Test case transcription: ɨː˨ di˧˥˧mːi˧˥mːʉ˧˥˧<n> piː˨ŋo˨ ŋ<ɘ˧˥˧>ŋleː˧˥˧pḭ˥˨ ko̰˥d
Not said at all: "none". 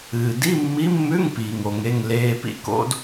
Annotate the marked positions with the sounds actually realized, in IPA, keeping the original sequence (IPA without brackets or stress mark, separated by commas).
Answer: ŋ, e˧˥˧